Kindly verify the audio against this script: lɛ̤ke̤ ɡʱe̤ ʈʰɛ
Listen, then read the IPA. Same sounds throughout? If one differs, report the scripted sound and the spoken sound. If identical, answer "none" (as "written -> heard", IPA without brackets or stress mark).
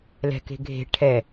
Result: none